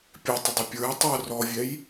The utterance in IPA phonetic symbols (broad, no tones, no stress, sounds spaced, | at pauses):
pʲ ɛ tˤ ə dˤ ɪ pʲ ə˞ j tˤ ə˞ r ɔ vʲ ɛ j